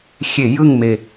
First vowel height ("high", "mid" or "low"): mid